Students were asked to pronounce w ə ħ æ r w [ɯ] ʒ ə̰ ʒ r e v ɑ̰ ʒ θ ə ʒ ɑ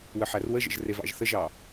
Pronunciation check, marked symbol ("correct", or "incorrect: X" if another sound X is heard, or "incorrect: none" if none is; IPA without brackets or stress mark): incorrect: ə